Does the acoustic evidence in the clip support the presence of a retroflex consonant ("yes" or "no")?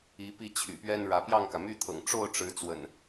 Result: yes